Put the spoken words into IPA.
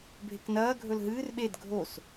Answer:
bʱ e k n ɐː ɡʱ ɵ l ɦ ɨː r ɓ e d ɡʱ o s

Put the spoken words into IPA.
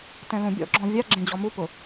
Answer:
t ɛ̃ l ũ bʲ ɔ̰ ɡ͡ǁ ɔ̃ vʲ a ɡ͡ǁ ẽ d͡ʑ ɔ m u p ʊ

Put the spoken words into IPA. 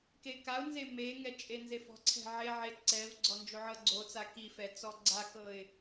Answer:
k e k a ʊ̯ n z e m e ŋ ɛ t͡ʃʼ e n z e f ɔ̤ ǀʰ ɛ̤ ʕ e ʕ e ǀ ɛ v ɡ͡ǀ ɔ n d͡ʒ o ʕ ɤ ɡ͡ǀ o t͡s a k i f ɛ t͡s ɔ ɡ͡ǀ a k ɤ ɪ̯

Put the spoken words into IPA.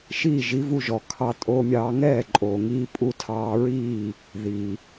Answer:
ʃ iː˥˩ ʒ i˩˥ v u˧ ʒ ɔ˩ kʰ ɑ˧ tʼ o˧ mʲ ɑː˧ ŋ ɛː˥˩ ǃʼ oː˩ ŋ iː˧ pʼ u˧ tʰ ɑː˧ ɹ iː˥˩ | ð iː˩

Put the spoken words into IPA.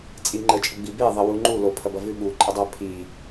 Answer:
t͡sʼ i ŋ͡ǃ ə t͡ʃʼ ə ɡ͡b i b e ðˤ ə w u ŋ͡ǃ u l o pʰ ɐ b ɐ v ʉ ɓ u ǃʼ ə dˤ æ pʰ i

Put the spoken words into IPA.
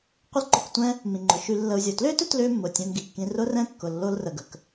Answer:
qʷ ɪ˦ l ǃ ʊ˧ k tʷ ɛ̃˦ | m ĩ˨ ŋ͡ǃ ʊ˨ ʃ y˧ lː ə˧ u̯ zʲ o˨ t l ʏː˦ t ʏ˦ t l ʏː˦ mː ʊ˨ tʲ ɛ̃˧ m ɡ i˨ kː ĩ˧ r ʊ˦ r ɛ̃˦ kː ʊ˨ lː o˦ l r ə˧ ɡ ə˧ k

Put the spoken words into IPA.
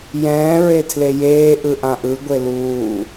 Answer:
j ɛ̃ː ɹ e tʰ l e j eː ʔ ɯ ʔ ã ʔ ɯ ɡʷ e l uː

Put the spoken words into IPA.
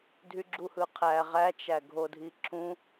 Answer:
dʱ y ɡ͡ǁ u h ɯ qʰ æ ʁ æ t͡ʃ æ ɡʱ o dʱ i ǁʰ ũ

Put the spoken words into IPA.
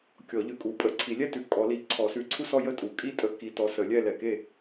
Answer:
kʲ ɔ˨˩˦ ʎ ʉ˨ kʼ u˨˩˦ pʼ ə˨˩˦ ǀʰ i˨˩˦ lʲ ɛ˥˨ t ʉ˨ kʼ ɔ˨˩˦ l i˨˩˦ ǀʰ ɔ˨˩˦ s ʉ˨ ǀʰ u˥˨ s ɔ˥˨ j ə˥˨ tʼ u˨˩˦ kʼ i˥˨ tʼ ə˨˦ k i˨ t ɔ˨˦ s ə˨˩˦ lʲ ɛ˥˨ l ɛ˨ k e˥˨

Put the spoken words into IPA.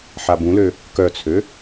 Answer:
ħ a b ũ l ø | k œ t͡sʰ ø

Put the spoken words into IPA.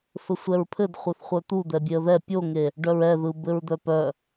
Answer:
f ɘ sʷ ɛ ɹ pʰ ɘ d χʷ œ θ χʷ œ t̪ u d̪ ɛ bʲ e ə̯ ð ɛ pʲ o ŋ e | ɖ œ ɹ ɛ ð ɯ b ɘ ɹ d̪ œ p œ

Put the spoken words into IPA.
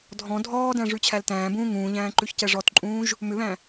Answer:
dʱ ɔ̃ dʱ ɔː d æ̃ ʐ ʉ t͡ɕʰ æ l t æ̃ː b ũː ŋ ũː ʎ æ̃ː ǃ ʉ ç c ɛ ʐ ɔ t ǃʼ ũː ʒ | m ʏ β æ̃

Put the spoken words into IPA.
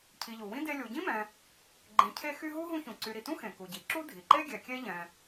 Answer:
cʰ i˨ ʎ u˩ w ĩ˥ d e˦ lʲ u˨ ɟ ĩ˥ m ɛ̃˨ | ɡ͡ǃ ẽ˨ cʰ e˦ x y˦ ɦ u˥ ɦ ũ˥ ç ũ˨ ǀ y˨ ɾ i˩ t ũ˥ x ẽ˩ k u˩ ɟ i˩ ǁ u˥ dʱ i˩ ǃ e˥ ɡʲ ɛ˨ kʲ e˥ ʎ ɛ̃˨

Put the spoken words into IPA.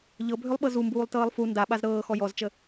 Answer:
ʎ ɤ bʱ ʏ lˠ ɓ ɤ z u m b uː lˠ t ɤː lˠ f u n d a ɓ a z ɾ ɤː x ɔ j ɔ z t͡ʃ ə

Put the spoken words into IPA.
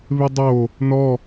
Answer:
β ɪ dˤ o | n ɔ

